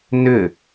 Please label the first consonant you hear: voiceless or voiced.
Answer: voiced